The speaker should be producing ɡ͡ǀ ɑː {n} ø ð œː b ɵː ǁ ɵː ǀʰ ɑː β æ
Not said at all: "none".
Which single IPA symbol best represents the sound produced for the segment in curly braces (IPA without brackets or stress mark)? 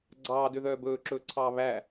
d